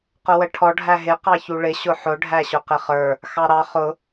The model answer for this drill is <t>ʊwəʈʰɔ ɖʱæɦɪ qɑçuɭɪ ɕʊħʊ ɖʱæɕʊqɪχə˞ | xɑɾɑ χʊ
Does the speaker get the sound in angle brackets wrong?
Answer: yes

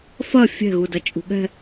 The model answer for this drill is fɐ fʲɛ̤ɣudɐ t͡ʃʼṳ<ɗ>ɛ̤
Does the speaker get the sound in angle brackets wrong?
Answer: yes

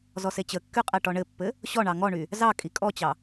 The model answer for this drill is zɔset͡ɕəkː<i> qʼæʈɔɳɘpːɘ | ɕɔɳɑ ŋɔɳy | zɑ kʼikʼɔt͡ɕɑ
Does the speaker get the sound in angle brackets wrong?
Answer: yes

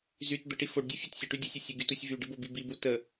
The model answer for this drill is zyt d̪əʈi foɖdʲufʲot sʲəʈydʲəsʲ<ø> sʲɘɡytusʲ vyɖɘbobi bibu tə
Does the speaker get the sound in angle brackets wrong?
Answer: yes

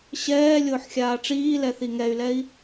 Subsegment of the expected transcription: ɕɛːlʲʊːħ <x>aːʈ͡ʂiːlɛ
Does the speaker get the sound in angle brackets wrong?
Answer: yes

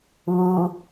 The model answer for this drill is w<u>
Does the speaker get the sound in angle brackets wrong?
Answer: no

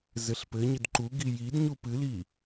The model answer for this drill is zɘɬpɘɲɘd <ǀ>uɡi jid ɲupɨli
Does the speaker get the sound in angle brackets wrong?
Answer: yes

